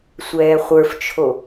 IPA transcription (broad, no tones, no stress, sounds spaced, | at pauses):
sʷ ɛː χʷ ə˞ f t͡ʃʰ o